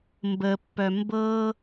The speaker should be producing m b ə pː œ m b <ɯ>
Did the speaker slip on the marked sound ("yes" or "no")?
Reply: yes